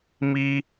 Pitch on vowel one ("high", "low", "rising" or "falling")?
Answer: high